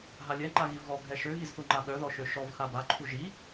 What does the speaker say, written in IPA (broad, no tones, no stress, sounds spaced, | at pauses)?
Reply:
ɦ a lʲ ɛ ŋ͡ǃ a ɣ i v ɣ ɔ ɡʱ ɛ ʃ ø ɣ i z θ u ŋ͡ǃ a ɠ œ ð ɔ ʃ ø ʃ ɔ v x a b a ǃʰ u ʒ i